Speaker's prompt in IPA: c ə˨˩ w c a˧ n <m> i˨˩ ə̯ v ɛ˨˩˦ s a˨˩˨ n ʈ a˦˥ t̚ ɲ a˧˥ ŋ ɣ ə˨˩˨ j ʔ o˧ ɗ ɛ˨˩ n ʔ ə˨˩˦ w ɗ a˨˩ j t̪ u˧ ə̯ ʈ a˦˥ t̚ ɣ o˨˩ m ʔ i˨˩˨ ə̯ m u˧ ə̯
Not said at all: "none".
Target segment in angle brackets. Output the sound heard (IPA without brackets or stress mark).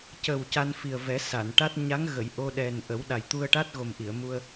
f